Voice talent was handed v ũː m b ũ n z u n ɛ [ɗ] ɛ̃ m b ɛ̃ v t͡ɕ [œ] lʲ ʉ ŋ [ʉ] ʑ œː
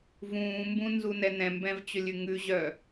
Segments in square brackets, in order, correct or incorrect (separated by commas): incorrect, incorrect, correct